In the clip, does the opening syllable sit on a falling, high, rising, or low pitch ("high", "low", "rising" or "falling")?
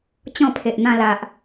falling